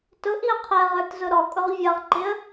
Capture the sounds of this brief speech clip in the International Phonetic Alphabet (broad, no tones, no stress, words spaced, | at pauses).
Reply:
tʊʔiʊ̯ qʰəɪ̯ʁə˞tzʊ ɾɔkʼʊʁ vʲʌʁǃɪə̯